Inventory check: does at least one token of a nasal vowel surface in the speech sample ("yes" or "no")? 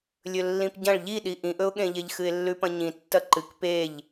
yes